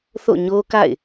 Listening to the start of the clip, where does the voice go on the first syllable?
falling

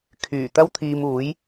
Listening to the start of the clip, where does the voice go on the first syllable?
low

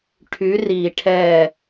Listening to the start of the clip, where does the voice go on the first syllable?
rising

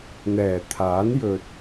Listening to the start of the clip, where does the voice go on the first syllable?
low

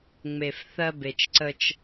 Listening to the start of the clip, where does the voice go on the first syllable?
low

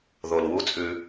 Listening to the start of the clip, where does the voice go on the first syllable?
low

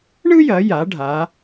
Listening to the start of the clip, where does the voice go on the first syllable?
high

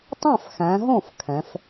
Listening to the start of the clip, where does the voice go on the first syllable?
falling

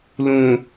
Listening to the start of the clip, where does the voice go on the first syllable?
low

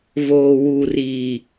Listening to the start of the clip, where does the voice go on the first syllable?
low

